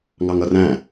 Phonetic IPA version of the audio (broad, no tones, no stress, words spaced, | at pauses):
ŋɑŋʌræ̃